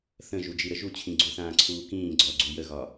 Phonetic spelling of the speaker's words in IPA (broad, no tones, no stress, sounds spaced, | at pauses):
θ ə̃ ʒ u d͡ʒ i ɾ ə ʒ u t͡ɕʰ ĩ ɡ͡ǀ u θ ãː ǀʰ uː k ĩː ɡ͡ǀ ɔ ɡ͡ǀ u j ə ɣ ɒ